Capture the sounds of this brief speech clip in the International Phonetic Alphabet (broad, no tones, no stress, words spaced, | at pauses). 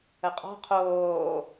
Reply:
əqʼɔ̤ qʰoː